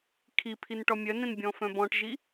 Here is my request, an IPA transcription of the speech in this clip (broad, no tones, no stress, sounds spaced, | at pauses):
kʰ i pʰ i n ʈ ɔ mʲ œ n ẽ n bʲ ɔ̃ f œ̃ b ɔ̃ ʈ ʒ i